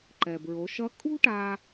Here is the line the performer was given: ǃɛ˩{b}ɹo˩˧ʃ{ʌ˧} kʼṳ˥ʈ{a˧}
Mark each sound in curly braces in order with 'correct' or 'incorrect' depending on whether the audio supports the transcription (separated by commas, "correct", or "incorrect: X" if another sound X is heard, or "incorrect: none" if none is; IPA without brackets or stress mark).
correct, incorrect: ʌ˧˥, correct